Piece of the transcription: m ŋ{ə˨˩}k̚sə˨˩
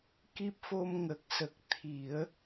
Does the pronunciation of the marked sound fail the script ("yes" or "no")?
no